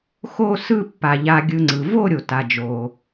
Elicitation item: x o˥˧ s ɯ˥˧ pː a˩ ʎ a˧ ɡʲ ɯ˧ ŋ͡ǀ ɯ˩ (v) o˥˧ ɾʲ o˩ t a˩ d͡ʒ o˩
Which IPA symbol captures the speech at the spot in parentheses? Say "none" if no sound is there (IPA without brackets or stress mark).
v